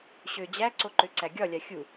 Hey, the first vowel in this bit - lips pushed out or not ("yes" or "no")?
yes